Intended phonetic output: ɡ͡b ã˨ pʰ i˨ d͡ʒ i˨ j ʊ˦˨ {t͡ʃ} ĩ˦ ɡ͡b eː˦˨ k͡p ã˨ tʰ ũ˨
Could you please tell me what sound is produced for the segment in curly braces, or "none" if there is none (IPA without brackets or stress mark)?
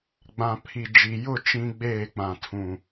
t͡ʃ